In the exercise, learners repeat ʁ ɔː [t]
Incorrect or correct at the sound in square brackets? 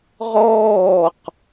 incorrect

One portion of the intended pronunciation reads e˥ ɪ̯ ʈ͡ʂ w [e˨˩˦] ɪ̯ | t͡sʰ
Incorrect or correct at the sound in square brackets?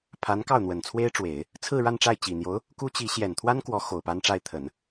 correct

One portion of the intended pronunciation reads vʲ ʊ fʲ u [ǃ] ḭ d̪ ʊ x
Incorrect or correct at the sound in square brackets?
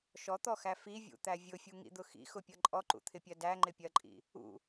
incorrect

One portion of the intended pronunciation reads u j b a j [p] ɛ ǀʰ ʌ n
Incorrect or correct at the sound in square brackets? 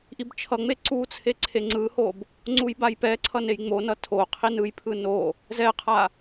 correct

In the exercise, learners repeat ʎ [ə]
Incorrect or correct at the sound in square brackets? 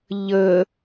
correct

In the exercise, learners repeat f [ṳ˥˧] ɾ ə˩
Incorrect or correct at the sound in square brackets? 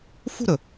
correct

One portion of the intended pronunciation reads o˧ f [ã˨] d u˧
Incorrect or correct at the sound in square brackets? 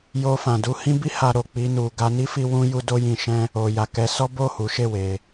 correct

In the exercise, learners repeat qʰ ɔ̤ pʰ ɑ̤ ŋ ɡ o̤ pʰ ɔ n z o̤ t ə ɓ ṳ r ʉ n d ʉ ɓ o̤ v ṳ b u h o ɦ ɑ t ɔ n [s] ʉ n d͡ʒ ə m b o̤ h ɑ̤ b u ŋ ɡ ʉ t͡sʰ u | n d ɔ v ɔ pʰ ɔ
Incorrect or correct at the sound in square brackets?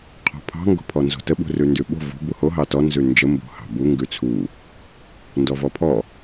incorrect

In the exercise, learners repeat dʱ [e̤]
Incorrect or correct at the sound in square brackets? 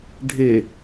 incorrect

